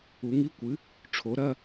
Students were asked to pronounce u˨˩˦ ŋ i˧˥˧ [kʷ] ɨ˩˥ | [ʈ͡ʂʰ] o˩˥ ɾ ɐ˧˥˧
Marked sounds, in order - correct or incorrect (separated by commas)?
correct, correct